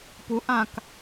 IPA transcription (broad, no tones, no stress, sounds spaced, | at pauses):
p u ʔ ã k